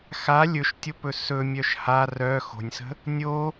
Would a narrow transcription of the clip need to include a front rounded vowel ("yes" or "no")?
yes